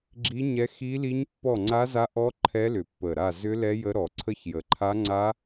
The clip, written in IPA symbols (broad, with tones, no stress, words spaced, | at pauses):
ɡ͡ǁi˦˥ɲɛ˦˥ xi˦˥li˦˥ɲ pːɔ˦˨ŋ͡ǀa˦˥za˦˥ʔɔ˦˥ ǃʰɛ˦˥lʏ˨˩pːə˨˩ɾa˦˨ zʏ˦˥lɛ˦˥jə˦˥ɾɔ˨˩ ǀʰə˦˥çjə˨˩ǃʰa˦˥ ŋ͡ǀa˦˥